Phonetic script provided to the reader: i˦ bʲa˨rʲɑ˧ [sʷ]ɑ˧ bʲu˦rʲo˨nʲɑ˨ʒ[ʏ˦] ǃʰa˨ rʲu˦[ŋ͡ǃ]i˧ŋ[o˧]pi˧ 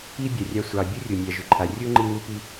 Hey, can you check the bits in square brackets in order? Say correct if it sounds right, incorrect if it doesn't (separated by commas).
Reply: correct, incorrect, correct, incorrect